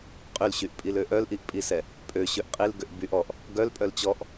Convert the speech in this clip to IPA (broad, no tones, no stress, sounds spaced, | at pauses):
qʼ y l ɕ y ʔ pʼ i l ø ʔ œ l ʔ i ʔ pʼ i s ɛ | pʼ ø ɕ ø ʔ qʼ i l ɡ ø ʔ b y ʔ ɔ ʔ | ɡ œ l pʼ œ l t͡ɕ ɔ ʔ